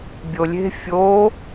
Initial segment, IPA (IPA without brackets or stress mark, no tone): bʲ